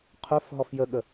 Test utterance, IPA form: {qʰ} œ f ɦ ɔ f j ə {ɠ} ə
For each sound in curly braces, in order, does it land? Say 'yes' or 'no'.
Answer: yes, yes

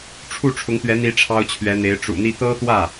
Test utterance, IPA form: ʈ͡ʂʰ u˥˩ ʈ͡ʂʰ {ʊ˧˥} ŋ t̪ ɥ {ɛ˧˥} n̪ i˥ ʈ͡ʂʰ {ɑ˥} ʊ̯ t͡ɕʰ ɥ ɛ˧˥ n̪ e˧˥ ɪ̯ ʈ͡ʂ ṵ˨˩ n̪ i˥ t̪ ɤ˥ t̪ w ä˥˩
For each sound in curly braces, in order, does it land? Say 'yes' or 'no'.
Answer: yes, yes, yes

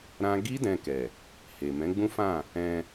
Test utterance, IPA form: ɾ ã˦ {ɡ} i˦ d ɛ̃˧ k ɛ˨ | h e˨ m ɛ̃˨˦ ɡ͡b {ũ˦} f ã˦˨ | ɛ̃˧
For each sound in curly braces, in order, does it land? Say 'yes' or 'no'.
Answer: yes, yes

